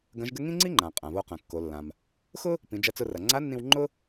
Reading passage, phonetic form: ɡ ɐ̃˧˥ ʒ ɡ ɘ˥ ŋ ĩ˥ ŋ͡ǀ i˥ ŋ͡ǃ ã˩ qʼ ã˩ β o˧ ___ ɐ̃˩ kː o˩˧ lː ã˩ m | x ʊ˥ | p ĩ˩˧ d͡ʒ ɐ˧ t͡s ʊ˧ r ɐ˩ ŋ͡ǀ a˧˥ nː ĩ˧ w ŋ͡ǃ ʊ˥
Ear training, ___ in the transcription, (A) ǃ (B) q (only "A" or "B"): B